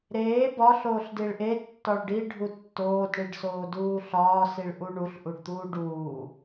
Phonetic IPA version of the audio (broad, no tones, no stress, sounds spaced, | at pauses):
ɾ eː b ɒ ɬ oː ɬ d i ɭ ʔ e tː ɒ ɭ ɖ i ɖʱ u tː oː d ɳ i ɖ s oː d uː ɬ ɒː s i ɭ ʔ u ɳ u ɬ ʔ u ɖ t̪ uː ɖ uː